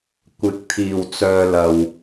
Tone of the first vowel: rising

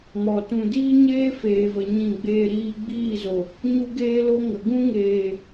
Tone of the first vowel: low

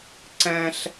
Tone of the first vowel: high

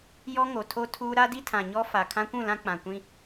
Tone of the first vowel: high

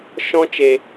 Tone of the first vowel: high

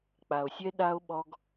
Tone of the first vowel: low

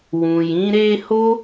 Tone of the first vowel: low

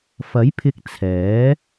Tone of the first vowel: rising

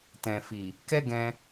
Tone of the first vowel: low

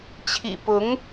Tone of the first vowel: low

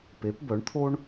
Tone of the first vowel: rising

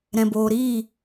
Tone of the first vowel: low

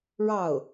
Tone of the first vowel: falling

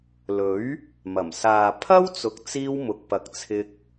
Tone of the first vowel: rising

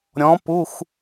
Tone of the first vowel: rising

